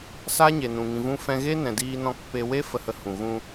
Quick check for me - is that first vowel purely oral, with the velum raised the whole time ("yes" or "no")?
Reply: yes